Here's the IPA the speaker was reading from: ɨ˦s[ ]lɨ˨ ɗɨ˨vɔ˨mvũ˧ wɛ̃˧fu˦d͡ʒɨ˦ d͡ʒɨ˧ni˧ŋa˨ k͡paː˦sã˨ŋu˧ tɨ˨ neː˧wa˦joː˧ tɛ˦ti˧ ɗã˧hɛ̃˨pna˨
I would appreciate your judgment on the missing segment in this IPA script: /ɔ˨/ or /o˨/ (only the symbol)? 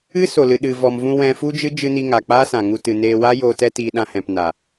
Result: o˨